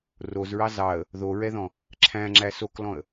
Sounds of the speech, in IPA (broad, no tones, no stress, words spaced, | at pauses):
rozɹɑ zɑə̯ | ðoɹɛðɔ̃ | ǁʰæ̃ŋ͡ǁæ soklɔ̃ə̯